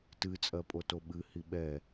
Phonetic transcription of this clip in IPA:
t ɨ t͡sʼ ɜ pʼ o t o ɓ ɨ h i ɓ ɛ

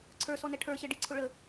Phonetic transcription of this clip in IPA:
ǀʰ ə˞ s ɔ n ɛ ʈʰ ə˞ ɕ ɛ ɖ i ǀʰ ʊ ɭ ə

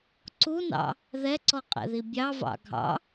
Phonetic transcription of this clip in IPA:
ǀ u n ɑ̰ | ð ɛ ǀ ɔ qʼ ɛ̰ ð i bʲ ɑ v ɑ̰ ɡʱ ɑ̰

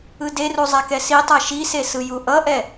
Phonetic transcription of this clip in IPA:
ɯ d e r u zˤ a k ɛ s i tˤ a ʃ i s e s ɯ j u ʔ ʌ ʔ ɛ

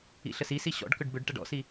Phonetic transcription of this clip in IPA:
ḭ ɬ ə s i s i ɕ ɔ̰ ɖ k ʏ ɖ b ʏ ɖ ʈ ɐ ɖ ɔ̰ s i

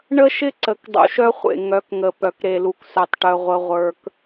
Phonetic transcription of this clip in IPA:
ɳ ə˦ ʃ ɪ˦ ǀ ə˨ k dˤ ṵ˨ ʃ œ˦ χʷ ḛ˨ ŋ œ˨˦ k ŋ ə˨ p œ˨ k ɾ e˨ l u˨ k s œ˨ tˤ ʈ œ˦ ʁʷ ə˦ ʁʷ ə˞˦ k

